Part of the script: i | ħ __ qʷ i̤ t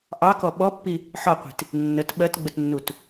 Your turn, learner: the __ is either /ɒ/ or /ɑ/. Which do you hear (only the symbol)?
ɒ